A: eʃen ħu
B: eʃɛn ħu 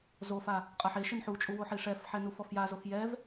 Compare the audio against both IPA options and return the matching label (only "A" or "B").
A